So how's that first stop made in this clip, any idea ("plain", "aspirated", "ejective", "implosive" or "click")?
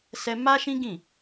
plain